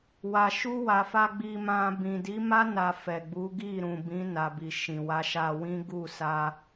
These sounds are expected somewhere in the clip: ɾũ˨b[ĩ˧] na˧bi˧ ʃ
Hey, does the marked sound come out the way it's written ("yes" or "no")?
no